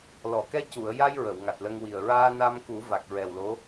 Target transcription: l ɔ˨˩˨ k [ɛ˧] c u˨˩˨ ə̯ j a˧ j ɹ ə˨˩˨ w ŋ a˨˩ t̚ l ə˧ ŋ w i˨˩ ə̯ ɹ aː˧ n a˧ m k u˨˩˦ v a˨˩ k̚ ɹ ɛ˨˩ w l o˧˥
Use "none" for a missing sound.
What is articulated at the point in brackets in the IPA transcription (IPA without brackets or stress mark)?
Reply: ɛ˧